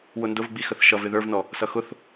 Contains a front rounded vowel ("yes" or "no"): no